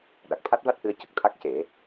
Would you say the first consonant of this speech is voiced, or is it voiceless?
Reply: voiced